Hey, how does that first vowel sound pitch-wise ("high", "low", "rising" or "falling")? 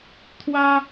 high